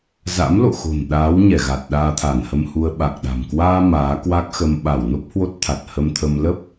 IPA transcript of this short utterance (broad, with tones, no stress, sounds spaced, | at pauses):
z a̰˧˥ m l o̰˧˨ x o̤˨˩ n ɗ aː˨˦ w ɲ ɛ˧˩ ɣ a˨˩ t̚ ɗ aː˧ t̪ʰ a˧˩ n h ə˧ m h u˧ ə̯ ɓ a˨˩ k̚ ɗ a̤˨˩ m k w aː˧ m aː˨˦ k w a˦˥ k̚ x ə˧ m ɓ a˧˩ w n o˦˥ p̚ h w o˦˥ t̚ t̪ʰ a˨˩ t̚ h ə˧ m t̪ʰ ə˧ m l ə˦˥ p̚